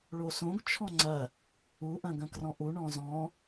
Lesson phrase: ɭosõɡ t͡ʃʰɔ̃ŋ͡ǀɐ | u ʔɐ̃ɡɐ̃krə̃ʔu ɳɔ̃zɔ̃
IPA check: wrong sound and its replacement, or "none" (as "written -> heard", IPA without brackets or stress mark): ə̃ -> ɔ̃